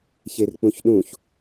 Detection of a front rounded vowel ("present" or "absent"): absent